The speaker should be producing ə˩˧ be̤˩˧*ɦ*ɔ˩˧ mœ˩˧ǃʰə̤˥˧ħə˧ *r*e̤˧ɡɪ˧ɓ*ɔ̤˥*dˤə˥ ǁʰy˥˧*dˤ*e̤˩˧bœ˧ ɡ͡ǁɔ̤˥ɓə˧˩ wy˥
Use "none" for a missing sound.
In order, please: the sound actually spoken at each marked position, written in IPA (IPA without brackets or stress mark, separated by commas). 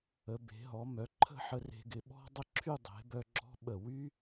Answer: ɦ, r, ɔ̤˥, dˤ